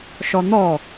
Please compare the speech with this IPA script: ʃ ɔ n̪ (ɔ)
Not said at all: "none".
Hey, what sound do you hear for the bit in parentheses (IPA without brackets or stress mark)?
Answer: ɔ